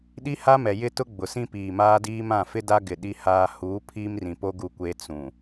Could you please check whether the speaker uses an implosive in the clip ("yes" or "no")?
yes